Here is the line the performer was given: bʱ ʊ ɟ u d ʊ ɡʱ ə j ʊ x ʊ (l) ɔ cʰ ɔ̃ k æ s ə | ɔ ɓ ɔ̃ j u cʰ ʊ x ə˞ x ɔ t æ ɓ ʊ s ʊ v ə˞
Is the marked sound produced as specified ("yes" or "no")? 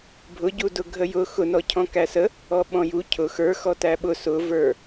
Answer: no